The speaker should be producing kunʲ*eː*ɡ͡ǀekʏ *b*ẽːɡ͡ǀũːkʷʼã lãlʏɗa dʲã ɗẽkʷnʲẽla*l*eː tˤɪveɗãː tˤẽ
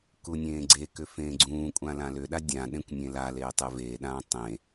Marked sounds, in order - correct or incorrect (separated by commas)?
incorrect, incorrect, correct